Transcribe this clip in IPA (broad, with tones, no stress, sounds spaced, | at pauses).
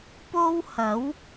p o˥ w h ɐ˨˥ w